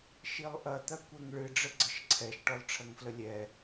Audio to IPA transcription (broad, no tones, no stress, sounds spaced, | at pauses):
ʃ i lˠ ʔ ɐ t̪ ɐ kʷ ɛ ŋ ɭ ɨ ɖ͡ʐ ə ɡ͡ǀ ə ʃ ǀʰ ɛ ʃ ʈ ɔ lˠ ʈ͡ʂʰ ɐ ŋ f l ə lʲ ɛ